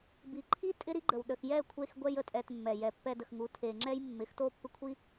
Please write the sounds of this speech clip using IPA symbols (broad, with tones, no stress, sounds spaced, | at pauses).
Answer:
b i˨ ǃʰ i˦ tʼ ɪ˦ ɾ i˦ ɡ͡ǃ ə˨ w ɗ ə˨ x j ɛ˦˨ kʷʰ e˧ x ɡʷ ɛ˦ j ə˧ tʼ ɛ˧ t mː ɛ˨ j ɛ˨ pː ɛ˧ d ə˨ x ŋ u˨˦ tʰ e˧ ŋ͡ǁ ɛ˦ j mː ɪ˨˦ x t o˦˨ pː ɪ˦ kʷʰ i˦